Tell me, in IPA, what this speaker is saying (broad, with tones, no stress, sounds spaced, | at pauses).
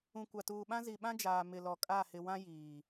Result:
ũ˨ kʷ a˨ t uː˨ ɓ ã˦ z i˨ ɓ ã˦ d͡ʒ aː˨ m ɪ˨ l ɔ˨ kʼ a˦˨ h ɪ˨ w ã˦ j iː˨